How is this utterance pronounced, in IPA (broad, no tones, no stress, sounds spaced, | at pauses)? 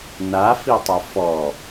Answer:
n a f i tˤ ɐ f ɔ